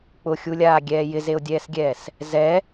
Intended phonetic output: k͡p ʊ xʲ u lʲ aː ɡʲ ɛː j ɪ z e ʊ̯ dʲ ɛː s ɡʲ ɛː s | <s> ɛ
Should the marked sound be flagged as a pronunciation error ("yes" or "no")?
yes